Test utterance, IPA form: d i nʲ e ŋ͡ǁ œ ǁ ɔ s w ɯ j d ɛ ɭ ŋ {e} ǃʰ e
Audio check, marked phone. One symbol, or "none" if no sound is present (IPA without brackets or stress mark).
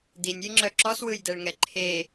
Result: ɛ